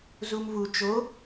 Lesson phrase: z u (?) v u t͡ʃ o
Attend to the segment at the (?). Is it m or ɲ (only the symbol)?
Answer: m